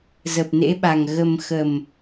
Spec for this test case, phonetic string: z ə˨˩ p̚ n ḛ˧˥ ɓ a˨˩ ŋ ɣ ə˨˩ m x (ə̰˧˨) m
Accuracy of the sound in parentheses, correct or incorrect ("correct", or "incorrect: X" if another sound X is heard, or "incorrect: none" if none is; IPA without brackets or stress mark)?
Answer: incorrect: ə˨˩